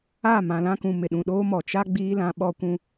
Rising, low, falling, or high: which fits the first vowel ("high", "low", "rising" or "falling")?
falling